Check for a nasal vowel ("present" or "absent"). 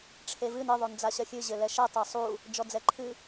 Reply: absent